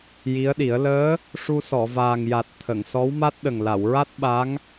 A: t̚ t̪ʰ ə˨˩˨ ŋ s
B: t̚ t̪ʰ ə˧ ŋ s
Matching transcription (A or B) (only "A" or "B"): A